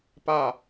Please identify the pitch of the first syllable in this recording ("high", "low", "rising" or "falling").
falling